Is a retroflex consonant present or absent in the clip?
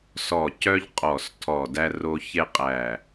absent